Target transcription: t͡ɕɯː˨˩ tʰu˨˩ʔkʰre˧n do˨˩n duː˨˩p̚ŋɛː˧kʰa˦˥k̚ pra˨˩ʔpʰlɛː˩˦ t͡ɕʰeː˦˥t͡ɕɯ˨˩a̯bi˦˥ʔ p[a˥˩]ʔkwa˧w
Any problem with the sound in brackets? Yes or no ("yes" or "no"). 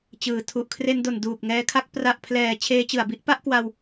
no